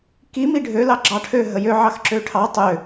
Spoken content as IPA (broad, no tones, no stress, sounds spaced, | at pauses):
k i m i ɖʱ ø l ɑ ɡ͡ǁ ɑ ʈʰ ø ɦ ə j ø ʕ ɑ x ǁ ø ʈʰ ɑ tˤ ø